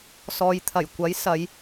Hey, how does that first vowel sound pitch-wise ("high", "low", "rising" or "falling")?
low